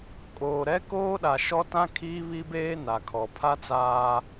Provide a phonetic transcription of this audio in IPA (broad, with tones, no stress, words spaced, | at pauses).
kʼoː˨ ɾɛ˦ koː˦ɗa˨ ʃɔ˦tã˦ kʰiː˦βi˦beː˦ na˨kʰɔ˨ pʰa˦t͡saː˦